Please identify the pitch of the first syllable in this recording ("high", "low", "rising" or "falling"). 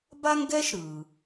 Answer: high